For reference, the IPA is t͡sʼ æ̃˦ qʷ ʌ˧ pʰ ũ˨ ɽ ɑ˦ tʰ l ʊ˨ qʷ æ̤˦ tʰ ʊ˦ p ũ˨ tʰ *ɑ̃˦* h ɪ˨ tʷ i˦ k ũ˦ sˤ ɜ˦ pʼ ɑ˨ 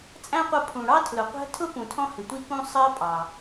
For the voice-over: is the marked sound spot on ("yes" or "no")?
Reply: no